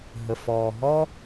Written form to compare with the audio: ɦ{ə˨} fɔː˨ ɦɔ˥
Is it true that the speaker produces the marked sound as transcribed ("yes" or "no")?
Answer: yes